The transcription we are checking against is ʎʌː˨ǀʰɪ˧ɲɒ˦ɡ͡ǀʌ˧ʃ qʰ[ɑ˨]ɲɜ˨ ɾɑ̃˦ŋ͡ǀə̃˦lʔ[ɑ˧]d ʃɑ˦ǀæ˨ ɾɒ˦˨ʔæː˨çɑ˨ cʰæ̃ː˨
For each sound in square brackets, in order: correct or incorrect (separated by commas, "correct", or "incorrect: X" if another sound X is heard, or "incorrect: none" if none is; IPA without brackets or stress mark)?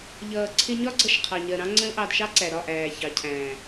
correct, correct